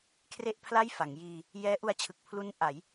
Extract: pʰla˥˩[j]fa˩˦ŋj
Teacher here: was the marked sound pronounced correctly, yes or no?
yes